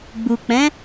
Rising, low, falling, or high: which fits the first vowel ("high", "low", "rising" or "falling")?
low